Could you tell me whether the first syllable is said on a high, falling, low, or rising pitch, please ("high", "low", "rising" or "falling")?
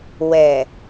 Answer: low